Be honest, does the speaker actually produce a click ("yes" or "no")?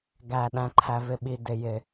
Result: yes